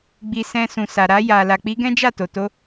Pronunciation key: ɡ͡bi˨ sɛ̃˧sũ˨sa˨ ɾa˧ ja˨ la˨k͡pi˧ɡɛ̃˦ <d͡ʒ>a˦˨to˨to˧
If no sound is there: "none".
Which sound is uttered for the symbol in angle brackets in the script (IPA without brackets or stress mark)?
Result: d͡ʒ